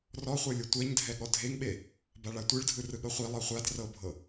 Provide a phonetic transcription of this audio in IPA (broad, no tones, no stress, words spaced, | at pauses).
rɔχʷɤ lʲɤtʷɛɲdʱɛ ɠɔdʱeŋɓe | baɭatʷɯɭdʱɯ rɯɠɤχʷi lˠɤχʷad rɤbʱɤ